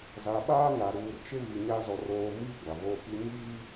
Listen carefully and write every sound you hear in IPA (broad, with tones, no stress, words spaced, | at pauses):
za˨ɓaː˦ ŋa˨ ɾuː˨rt͡ʃɪ˦βi˨ɲa˦ zɔ˦roː˦ miː˦ ɡʷa˨voː˦pi˦ ɲiː˦